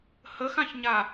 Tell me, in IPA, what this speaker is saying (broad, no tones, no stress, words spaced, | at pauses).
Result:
həxãçɲa